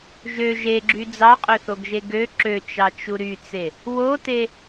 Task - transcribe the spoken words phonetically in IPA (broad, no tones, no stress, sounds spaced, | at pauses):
ʒ ø ʒ e ɡ͡ǁ y d͡z ɑ qʼ ø θ o ɡ ʒ e ɡ ø ǁ ø t͡ʃ ɑ t͡ʃ u ɾ y t͡s e | w o t e